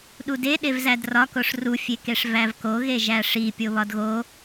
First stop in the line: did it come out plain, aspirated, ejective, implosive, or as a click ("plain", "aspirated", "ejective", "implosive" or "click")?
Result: implosive